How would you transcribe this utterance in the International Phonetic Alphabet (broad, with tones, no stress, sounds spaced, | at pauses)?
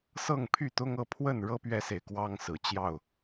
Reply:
s ɤ˥˨ ŋ pʰ y˥˨ t̪ ʊ˦ ŋ ɤ˥˨ pʰ w ə˥˨ n ɻ ɤ˦ p ɥ ɛ˦ s e˨ ɪ̯ k w ɑ˦ ŋ s ɹ̩˨˩ t͡ɕ j ɑ˥˨ ʊ̯